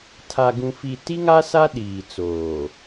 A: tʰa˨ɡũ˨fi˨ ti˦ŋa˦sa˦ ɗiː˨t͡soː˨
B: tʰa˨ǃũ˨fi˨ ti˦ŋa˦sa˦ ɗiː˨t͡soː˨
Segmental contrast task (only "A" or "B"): A